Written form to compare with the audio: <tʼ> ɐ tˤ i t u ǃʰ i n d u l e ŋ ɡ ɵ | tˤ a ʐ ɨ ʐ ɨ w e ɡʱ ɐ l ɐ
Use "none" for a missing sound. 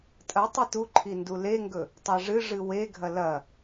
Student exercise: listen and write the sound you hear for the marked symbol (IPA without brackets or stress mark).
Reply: tʼ